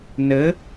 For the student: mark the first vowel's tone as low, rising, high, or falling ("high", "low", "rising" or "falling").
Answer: rising